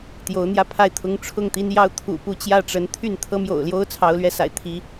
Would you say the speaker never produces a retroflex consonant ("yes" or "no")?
no